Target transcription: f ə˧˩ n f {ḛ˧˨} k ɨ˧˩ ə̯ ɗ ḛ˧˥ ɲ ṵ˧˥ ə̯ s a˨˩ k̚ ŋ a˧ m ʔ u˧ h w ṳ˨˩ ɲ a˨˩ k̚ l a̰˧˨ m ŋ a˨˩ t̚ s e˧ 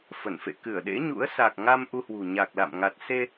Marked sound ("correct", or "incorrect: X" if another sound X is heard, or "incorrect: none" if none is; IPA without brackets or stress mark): correct